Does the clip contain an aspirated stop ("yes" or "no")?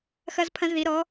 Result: yes